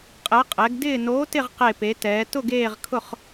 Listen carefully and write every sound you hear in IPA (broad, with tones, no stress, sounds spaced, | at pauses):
qʼ ɛ˨˥ qʼ ɛ˨˥ ɡ d ɪː˦˨ n oː˨˥ t ɪ˦˨ ʁ q e˦˨ p e˨˥ t ɛː˨˥ t ʊ˦˨ ɡ eː˦˨ ʁ kʰ ʊ˦˨ χ